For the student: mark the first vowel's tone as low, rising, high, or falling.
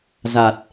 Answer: low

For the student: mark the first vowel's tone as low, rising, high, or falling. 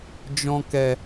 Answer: low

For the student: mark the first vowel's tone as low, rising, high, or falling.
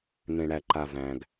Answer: low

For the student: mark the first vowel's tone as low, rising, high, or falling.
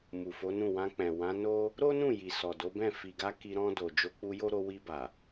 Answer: low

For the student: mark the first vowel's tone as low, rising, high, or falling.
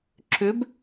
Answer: rising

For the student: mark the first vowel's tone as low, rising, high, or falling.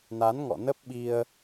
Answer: rising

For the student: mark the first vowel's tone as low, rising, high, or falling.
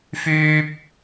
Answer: high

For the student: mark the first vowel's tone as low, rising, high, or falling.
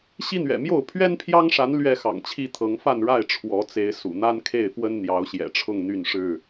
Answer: high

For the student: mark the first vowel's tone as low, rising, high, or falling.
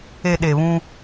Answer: low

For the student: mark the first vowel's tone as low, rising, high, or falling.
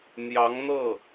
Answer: rising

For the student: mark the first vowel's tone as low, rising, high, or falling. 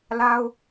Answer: high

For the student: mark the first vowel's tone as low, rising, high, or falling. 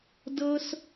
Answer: high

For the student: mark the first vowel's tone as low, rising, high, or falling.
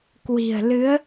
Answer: low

